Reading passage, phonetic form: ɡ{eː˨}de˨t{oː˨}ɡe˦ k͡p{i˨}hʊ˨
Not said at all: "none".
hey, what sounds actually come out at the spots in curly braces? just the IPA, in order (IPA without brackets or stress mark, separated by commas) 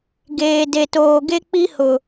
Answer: eː˨, oː˨, i˦